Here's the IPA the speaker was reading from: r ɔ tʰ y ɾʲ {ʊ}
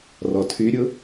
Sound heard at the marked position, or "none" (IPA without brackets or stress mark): ʊ